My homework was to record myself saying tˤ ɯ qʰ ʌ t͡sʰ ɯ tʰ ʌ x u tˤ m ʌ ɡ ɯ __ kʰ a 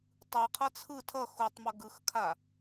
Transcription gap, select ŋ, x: x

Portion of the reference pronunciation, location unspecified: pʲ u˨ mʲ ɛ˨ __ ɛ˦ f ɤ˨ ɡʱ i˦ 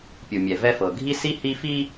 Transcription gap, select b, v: v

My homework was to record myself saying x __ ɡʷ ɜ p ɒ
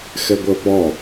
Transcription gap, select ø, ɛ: ɛ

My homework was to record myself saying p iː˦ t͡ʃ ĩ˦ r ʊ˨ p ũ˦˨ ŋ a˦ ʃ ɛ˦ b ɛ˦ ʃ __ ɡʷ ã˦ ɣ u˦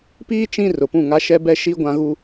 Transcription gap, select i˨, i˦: i˦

